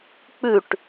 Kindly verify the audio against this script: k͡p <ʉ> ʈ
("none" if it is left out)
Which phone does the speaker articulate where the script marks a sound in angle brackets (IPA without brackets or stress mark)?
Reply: ʉ